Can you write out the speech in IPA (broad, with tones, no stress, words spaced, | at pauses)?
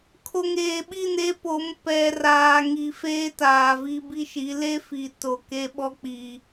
kʰo˨ŋeː˨ɓi˦˨n e˦po˨˦m pɛ˨ raː˨ ŋi˨feː˦ taː˨vi˦bi˦ʃi˨˦ le˦fi˨ to˨ke˦ɓɔ˦k͡pi˨